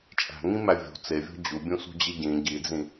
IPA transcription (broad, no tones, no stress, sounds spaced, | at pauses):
t͡ʃʼ æ̤ ŋ ĩ m æ vʲ o̤ t͡s e vʲ o̤ d͡ʑ u bʲ ũ s ṳ d͡ʑ i ɟ ĩ ɟ i d͡z ĩ